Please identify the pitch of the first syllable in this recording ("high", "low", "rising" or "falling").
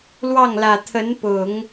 falling